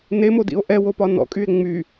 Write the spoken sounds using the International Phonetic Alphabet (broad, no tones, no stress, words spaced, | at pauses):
nemodḭo̯ ʔɛwopɒ nɔ̰kʼye̯ ŋ͡my